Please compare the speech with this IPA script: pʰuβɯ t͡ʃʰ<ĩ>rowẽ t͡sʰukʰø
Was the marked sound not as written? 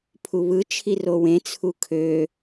yes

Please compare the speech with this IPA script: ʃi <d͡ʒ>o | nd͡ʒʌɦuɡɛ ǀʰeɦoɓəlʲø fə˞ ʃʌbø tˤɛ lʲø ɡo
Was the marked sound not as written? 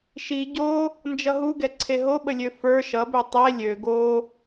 yes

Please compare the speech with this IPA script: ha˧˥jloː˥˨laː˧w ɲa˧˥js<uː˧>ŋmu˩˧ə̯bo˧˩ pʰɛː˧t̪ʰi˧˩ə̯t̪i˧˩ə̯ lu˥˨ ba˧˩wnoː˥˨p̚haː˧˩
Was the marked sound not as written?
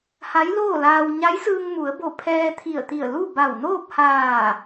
yes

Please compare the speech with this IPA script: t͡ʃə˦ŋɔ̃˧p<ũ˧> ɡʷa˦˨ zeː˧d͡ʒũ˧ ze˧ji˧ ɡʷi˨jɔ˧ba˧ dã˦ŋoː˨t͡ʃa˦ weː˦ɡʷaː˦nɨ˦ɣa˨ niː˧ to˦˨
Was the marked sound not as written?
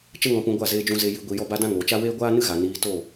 no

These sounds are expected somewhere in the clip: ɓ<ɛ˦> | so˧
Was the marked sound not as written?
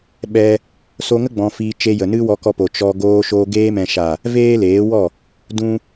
yes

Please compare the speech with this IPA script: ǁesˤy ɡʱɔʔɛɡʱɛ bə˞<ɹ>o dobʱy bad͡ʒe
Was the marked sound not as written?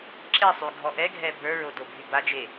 no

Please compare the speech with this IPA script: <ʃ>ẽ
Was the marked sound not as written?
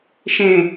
no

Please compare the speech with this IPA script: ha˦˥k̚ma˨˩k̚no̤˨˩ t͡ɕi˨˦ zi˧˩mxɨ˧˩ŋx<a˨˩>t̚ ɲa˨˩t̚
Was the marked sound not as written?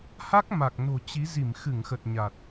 yes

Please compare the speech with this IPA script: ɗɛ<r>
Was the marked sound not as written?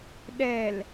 yes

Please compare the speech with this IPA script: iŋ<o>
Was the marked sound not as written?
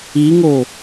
no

